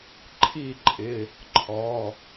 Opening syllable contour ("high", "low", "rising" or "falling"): falling